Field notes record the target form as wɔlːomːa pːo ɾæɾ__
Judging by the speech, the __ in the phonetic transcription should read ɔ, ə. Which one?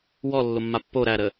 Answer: ə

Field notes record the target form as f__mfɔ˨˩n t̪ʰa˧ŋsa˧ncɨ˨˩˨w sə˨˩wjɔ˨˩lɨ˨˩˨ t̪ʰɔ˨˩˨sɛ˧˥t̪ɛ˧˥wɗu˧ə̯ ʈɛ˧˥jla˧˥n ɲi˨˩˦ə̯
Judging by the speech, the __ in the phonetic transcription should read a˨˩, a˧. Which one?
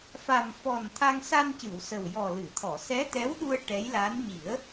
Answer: a˨˩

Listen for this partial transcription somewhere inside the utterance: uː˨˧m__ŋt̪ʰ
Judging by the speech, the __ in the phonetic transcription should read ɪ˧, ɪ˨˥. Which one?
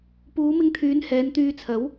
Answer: ɪ˧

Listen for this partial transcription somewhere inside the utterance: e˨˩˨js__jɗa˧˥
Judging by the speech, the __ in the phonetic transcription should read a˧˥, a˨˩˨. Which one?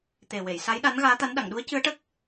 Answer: a˧˥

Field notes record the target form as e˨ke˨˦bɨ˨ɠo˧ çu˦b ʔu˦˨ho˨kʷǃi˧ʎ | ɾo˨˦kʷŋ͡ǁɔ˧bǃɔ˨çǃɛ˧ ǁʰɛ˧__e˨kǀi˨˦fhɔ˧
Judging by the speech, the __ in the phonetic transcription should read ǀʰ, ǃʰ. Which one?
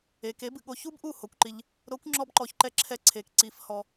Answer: ǀʰ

